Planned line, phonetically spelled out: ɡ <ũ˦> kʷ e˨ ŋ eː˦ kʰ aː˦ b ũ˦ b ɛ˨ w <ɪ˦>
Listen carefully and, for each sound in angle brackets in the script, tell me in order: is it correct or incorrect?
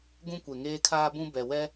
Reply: correct, incorrect: ɛ˦

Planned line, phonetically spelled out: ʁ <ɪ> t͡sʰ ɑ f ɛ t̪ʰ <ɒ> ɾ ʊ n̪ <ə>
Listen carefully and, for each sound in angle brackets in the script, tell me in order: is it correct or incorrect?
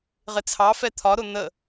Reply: correct, correct, correct

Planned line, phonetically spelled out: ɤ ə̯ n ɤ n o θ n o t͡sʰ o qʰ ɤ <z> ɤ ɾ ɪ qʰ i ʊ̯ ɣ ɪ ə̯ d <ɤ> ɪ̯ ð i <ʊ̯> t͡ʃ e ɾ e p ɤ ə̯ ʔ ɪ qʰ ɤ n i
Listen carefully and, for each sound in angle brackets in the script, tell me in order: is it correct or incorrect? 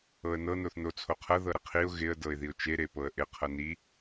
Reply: incorrect: ð, correct, correct

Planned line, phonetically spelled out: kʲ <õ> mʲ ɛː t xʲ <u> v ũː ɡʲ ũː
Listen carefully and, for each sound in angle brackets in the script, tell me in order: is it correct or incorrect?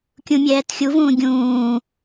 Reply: incorrect: ũ, correct

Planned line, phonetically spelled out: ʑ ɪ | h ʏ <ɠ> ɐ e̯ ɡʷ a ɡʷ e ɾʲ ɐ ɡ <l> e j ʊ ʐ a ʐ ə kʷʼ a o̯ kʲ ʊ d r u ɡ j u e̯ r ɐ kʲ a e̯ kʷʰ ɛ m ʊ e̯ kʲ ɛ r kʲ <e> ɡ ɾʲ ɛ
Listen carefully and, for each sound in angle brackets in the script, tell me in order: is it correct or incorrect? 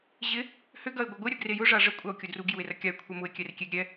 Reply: incorrect: ɡ, incorrect: r, correct

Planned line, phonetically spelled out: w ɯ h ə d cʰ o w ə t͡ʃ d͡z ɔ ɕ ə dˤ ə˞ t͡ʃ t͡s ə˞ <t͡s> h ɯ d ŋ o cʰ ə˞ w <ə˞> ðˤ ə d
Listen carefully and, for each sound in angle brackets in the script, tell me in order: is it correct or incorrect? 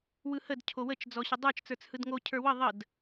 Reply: correct, incorrect: ə

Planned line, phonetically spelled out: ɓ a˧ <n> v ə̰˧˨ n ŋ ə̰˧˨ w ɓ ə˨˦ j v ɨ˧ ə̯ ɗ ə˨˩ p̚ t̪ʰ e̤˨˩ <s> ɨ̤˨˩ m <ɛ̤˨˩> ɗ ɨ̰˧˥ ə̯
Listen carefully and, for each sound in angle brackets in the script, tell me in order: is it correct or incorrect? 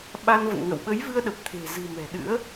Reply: correct, incorrect: z, correct

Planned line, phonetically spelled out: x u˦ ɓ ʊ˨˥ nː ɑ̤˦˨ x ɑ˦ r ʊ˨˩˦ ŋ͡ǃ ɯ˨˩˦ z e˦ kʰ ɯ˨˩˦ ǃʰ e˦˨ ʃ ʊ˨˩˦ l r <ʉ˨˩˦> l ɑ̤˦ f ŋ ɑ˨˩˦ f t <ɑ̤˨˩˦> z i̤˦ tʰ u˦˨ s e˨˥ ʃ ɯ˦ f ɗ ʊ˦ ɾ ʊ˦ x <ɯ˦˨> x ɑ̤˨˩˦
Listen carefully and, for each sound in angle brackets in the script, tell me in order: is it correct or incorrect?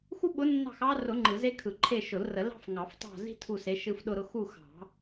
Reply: incorrect: ə˨˩˦, incorrect: ɑ̤˦˨, incorrect: u˦˨

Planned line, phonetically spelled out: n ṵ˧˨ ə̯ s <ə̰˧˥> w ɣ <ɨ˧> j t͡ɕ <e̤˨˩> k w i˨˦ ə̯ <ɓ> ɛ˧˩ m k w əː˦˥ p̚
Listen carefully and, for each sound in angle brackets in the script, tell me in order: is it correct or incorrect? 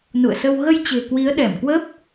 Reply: incorrect: ə˧, incorrect: ə˧, correct, incorrect: ɗ

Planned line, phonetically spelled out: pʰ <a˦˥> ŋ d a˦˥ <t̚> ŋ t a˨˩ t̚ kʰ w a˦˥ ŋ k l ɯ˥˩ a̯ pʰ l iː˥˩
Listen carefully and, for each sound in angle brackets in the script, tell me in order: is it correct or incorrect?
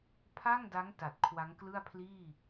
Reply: incorrect: a˥˩, incorrect: none

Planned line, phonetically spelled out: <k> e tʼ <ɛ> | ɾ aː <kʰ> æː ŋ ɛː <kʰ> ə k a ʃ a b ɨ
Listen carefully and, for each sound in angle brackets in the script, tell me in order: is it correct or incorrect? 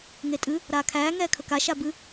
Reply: incorrect: ŋ, incorrect: ɨ, correct, correct

